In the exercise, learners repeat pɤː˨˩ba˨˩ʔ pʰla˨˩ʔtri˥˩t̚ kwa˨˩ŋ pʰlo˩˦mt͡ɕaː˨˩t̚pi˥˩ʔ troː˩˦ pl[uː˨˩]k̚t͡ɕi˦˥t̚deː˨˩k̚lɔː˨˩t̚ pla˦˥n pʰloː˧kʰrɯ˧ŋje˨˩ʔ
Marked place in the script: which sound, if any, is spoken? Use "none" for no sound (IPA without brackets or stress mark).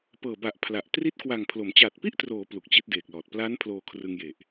u˨˩